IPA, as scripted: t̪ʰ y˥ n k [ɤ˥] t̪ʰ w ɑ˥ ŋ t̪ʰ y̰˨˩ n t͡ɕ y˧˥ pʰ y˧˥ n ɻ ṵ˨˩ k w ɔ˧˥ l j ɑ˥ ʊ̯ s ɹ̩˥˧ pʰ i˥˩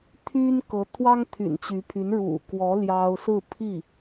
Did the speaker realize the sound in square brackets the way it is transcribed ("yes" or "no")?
no